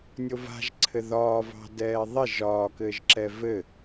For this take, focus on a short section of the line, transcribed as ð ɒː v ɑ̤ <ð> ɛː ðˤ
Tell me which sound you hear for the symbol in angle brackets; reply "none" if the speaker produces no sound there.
d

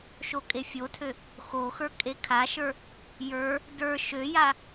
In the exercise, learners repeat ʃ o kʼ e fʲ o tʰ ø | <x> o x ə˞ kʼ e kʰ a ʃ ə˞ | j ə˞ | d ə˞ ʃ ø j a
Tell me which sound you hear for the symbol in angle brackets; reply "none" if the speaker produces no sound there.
x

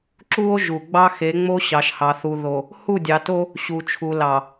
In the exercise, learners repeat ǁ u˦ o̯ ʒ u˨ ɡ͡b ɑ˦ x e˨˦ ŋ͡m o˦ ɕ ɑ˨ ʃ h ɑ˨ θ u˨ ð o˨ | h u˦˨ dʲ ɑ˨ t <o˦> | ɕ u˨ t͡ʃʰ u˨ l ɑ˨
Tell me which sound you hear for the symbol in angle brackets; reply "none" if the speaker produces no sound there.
o˦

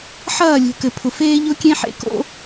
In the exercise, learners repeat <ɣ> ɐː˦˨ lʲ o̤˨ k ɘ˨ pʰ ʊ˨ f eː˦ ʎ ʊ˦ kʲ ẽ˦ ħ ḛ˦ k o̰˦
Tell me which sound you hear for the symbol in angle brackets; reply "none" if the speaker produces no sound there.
ħ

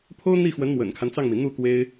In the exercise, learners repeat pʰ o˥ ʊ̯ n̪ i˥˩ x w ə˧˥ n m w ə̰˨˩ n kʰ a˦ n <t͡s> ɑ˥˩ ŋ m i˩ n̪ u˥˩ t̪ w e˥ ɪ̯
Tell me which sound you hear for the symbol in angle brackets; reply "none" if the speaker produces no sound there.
t͡s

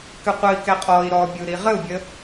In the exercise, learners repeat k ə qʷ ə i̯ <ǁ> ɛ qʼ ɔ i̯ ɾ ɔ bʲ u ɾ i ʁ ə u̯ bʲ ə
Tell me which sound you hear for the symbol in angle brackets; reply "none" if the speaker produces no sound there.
k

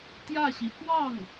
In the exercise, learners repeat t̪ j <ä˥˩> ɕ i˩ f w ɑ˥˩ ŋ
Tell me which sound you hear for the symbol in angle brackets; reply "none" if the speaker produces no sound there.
ä˥˩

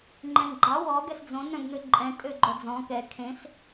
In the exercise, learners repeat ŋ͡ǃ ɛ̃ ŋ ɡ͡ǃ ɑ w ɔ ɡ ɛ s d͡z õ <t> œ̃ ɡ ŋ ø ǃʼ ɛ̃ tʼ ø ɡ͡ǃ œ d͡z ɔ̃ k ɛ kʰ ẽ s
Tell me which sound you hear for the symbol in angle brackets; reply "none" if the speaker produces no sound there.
n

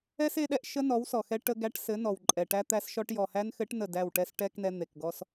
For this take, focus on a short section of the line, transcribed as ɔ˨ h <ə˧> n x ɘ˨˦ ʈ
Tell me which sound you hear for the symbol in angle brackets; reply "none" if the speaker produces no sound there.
æ˧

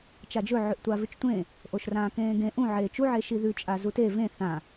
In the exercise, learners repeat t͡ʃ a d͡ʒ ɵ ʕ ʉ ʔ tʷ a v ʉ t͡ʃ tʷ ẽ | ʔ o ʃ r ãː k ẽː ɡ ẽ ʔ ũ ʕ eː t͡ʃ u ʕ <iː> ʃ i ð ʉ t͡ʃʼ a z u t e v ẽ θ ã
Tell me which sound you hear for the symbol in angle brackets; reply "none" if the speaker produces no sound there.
eː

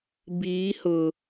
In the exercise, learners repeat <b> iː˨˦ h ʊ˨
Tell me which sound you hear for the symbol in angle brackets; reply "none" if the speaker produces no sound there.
b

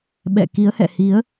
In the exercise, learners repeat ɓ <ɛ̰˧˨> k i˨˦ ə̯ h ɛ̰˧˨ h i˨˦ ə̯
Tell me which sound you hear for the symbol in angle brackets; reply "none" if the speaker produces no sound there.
ɛ̰˧˨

